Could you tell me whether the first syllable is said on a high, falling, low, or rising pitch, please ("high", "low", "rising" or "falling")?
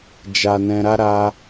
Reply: low